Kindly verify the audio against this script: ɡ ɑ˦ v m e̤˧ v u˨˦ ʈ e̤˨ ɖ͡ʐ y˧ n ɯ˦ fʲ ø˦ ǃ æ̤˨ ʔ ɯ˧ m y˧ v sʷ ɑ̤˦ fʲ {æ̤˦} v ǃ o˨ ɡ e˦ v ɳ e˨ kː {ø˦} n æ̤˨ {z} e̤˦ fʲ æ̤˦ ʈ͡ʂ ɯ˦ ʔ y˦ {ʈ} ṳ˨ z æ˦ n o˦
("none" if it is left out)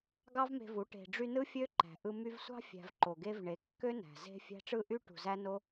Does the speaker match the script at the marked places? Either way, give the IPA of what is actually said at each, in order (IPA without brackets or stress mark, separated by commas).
æ̤˧, ø˦, z, ʈ